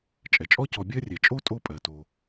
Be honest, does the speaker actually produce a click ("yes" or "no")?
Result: no